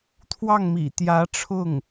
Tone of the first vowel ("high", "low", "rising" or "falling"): falling